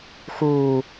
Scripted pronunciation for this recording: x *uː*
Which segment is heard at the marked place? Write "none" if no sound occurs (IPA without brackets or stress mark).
uː